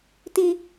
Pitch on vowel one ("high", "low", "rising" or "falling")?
high